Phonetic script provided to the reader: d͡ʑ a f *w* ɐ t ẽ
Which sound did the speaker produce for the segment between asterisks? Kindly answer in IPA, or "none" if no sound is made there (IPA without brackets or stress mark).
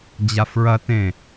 ɹ